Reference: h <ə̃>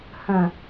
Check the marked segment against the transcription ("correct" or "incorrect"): correct